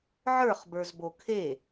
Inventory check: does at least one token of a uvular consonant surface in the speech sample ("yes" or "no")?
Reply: yes